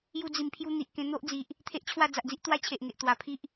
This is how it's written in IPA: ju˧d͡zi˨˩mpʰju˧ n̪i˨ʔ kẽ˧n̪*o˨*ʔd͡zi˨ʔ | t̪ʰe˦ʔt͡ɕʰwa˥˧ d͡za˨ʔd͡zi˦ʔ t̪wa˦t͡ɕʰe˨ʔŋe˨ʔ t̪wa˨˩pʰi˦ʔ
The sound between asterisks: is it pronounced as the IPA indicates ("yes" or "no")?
no